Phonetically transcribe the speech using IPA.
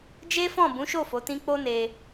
d͡ʒ e˦ f ɔ̃˦˨ b ũ˨˦ ʃ o˦˨ f o˨˦ t ĩ˦ k͡p o˦ n e˧

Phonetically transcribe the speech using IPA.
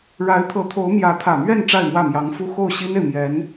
ɻ a˧˥ ɪ̯ t̪ʰ ɤ˧˥ t̪ʰ o˧˥ ʊ̯ m j ä˧˥ t̪ʰ ä˨˩ m ɥ ɛ˥˧ n ʈ͡ʂ a˥˧ ɪ̯ m w ä˥˩ m j ɑ˧˥ ŋ f u˥ x o˥˩ ʊ̯ ɕ i˥ n e˨ ɪ̯ m j ɛ˧˥ n

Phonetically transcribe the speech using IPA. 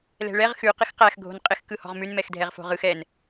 l ɛ̤ ɭ ɛ ʁ x ʉ q ɪ x q æ x ɡʱ o̤ n qʼ ɪ x k ɯ h ɔ̤ ʁ m ʉ n m ɛ x dʱ ɛ ʁ f o̤ ʁ ɯ x ɛ n

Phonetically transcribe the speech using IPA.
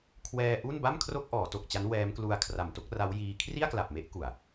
kʰ w ɛː˧ ʔ u˥˩ n b a˥˩ m kʰ r o˥˩ k̚ ʔ ɔː˩˦ t o˨˩ k̚ t͡ɕ a˦˥ n w ɛː˦˥ m k l u˧ a̯ kʰ r a˨˩ m t o˥˩ k̚ r a˦˥ w j iː˧ kʰ r i˥˩ a̯ k l a˨˩ p̚ m e˦˥ ʔ k u˨˩ a̯

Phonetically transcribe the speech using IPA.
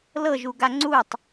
l ɤ ʒ u ɡ a ŋ͡ǀ u tˤ

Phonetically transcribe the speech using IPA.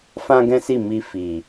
f ã˦ ɡ ɛ̃˦ s i˦˨ m i˧ f i˨

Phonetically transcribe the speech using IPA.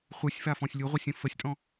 χʷ ɨ sʲ f a f ɔ̃ sʲ lʲ u ʁʷ ɯ sʲ ə̃ f ə sʲ tʼ ɔ̃

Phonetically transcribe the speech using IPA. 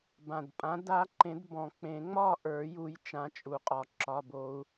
b ã˨˩ d pʼ ã˨˥ d a˦˥ ǃ ẽ˨˥ d b ɔ̃˨˩˦ k͡p ẽ˨˩˦ ŋ͡m ɒ˥˨ ʔ ə˞˨˩˦ j u˨˥ j t͡ʃ ã˨˥ t͡ʃʼ u˨˩ qʼ ɒ˨˩˦ ǁ ɒ˧˥˧ b o˦˥ u̯

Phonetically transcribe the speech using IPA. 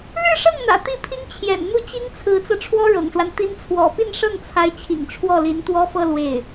ɻ ɻ̩˥˧ ʂ ɤ˥˩ ŋ n̪ ä̰˨˩ t̪ i˥˩ pʰ i˥ ŋ t͡ɕʰ j ɛ̰˨˩ n n̪ u˥˩ t͡ɕ i˥ ŋ t͡sʰ ɹ̩˧˥ t͡s ɤ˧ ʈ͡ʂʰ w ɔ˥ ɻ ɤ̰˨˩ ŋ ʂ w a˦ n t̪ i˧˥ n t͡sʰ w ɔ̰˨˩ p i˥˧ n ʂ ɤ˥˩ ŋ t͡sʰ a˧˥ ɪ̯ t͡ɕʰ ḭ˨˩ ŋ ʈ͡ʂʰ w ɔ˥˩ l i˧˥ n t̪ w ɔ˥ f ɤ˥˧ l w e˥˩ ɪ̯

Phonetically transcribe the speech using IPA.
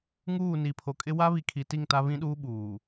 ŋ uː˦˨ n i˨ pʰ o˨ kʼ ɪ˦ w a˦ β i˨ kʰ i˨ t i˦˨ ŋ t a˦ β ĩ˦ ɗ uː˦ ɓ uː˨

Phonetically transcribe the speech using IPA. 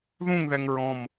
ð ũ ŋ ð ɛ ŋ ɹ ɔ̃ m

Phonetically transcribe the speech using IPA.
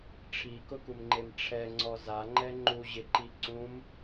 ʈ͡ʂʰ i k ʊ k u m ŋ͡ǃ e m ʈ͡ʂʰ ɛ ŋ͡ǀ ɔ z a ŋ͡ǃ ɛ ŋ͡ǃ u ʑ ɪ ǃ i ǀ ũ m

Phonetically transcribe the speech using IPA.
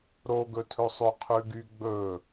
ɾ o ɡ ɵ tʰ ɵ sˤ ø qʰ ʉ ɡ y ɡ͡b ɵ

